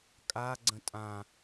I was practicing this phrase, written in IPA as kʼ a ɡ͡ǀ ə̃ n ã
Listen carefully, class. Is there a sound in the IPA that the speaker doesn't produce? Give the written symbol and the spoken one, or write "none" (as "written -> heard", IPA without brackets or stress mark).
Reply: n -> tʼ